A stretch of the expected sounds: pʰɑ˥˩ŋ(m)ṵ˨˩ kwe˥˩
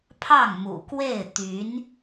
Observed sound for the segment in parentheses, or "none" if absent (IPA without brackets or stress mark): m